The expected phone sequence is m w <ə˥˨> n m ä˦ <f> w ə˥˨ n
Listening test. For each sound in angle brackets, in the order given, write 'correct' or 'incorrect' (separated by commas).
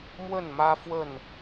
correct, correct